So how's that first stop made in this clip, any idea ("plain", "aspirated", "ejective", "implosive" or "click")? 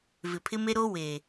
aspirated